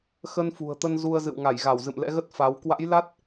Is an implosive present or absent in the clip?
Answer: absent